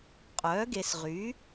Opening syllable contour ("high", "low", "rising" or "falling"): rising